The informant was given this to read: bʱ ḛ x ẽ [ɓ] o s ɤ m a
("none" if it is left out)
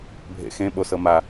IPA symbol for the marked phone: ɓ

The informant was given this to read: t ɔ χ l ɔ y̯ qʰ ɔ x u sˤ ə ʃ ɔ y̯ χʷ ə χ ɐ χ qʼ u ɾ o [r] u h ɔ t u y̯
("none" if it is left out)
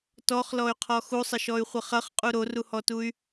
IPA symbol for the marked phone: r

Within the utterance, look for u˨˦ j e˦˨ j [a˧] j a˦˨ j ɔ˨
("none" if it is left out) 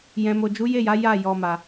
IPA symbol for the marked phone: a˨˦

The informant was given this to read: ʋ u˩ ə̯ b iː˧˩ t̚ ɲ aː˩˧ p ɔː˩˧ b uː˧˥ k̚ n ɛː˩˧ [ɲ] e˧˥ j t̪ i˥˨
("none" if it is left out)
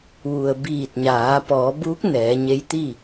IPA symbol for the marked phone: ɲ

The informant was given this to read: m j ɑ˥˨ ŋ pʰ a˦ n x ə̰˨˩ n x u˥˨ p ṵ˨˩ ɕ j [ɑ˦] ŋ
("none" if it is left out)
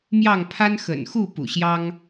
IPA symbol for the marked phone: ɑ˦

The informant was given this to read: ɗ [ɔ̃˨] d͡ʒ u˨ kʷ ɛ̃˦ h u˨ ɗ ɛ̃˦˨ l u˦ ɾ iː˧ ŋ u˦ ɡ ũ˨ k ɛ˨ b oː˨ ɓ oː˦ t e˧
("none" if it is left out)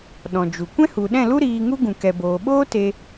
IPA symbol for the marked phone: ɔ̃˨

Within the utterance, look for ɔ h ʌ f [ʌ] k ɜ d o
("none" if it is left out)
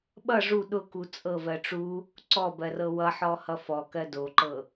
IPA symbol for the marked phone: ɔ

